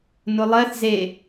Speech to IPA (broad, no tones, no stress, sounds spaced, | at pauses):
n ʊ lˠ ɜ θ z e